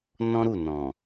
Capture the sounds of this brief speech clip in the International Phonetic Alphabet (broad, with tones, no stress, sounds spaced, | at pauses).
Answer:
n ɔ̃˦ ɾ u˦˨ n ɔ̃˨